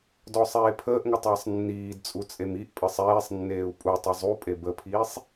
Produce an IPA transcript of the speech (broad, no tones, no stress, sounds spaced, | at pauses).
d ɔ sˤ eː pʰ əː ʔ ŋ ə tˤ əː sˤ nː iː d t͡sʼ u t͡sʼ e m i ʔ pʼ ə sˤ eː sˤ nː eː u̯ pʼ u tˤ i zˤ u pʼ e b ə pʰ iː sˤ